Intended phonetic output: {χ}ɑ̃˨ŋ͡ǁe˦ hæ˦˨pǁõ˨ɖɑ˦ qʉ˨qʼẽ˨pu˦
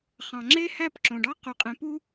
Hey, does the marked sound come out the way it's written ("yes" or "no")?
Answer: yes